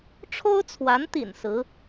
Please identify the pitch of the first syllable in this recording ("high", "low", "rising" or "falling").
high